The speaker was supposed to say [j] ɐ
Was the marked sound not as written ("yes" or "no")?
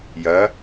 no